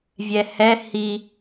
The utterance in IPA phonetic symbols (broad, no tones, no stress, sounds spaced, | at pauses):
vʲ ɛ h ɛ h i